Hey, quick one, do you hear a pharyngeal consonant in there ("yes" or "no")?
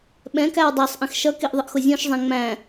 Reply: no